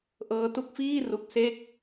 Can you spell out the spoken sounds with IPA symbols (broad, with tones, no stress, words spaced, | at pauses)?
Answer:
ʔɤː˦˥tu˦˥k̚fiː˥˩ ru˦˥k̚ se˥˩k̚